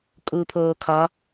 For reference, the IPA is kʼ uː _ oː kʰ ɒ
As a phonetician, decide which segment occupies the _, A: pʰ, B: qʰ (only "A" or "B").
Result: A